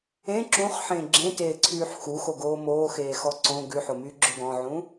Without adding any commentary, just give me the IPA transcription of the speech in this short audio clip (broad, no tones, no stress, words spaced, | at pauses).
ẽ ǁũχħẽ ɡ͡ǁẽteːǀʰyːħ xuxoɡoː moːxeːxɔ ǀõ ɡʉħomyːɡ͡ǁɵ ɡɔ̃ʕũ